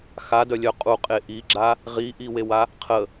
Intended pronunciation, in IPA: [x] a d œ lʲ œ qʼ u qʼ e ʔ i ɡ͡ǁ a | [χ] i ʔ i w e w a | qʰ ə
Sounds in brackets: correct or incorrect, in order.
correct, incorrect

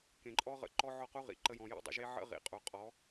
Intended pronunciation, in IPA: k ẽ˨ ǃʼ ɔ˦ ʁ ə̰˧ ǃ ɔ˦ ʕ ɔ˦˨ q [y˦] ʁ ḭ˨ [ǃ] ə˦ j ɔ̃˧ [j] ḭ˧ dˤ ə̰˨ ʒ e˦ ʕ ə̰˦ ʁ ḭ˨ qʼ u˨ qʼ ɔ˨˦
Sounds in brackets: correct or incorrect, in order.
incorrect, correct, correct

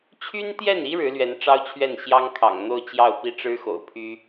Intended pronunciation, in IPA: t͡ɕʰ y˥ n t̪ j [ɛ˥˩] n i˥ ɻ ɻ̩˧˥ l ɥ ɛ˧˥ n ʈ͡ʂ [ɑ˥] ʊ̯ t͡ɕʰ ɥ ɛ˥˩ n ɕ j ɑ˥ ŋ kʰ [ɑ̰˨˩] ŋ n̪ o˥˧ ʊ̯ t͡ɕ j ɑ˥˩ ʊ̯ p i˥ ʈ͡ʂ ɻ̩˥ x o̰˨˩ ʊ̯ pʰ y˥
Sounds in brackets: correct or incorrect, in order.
correct, correct, correct

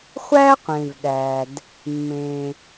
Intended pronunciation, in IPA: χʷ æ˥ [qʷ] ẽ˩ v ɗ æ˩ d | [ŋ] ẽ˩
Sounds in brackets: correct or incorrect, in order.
correct, incorrect

